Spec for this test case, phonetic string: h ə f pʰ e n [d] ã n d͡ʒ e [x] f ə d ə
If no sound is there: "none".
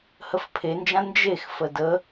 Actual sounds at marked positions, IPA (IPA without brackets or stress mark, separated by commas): d͡ʒ, x